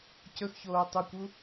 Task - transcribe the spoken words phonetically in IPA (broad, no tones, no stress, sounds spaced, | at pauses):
c ɵ x ç oː tˤ u kʷ u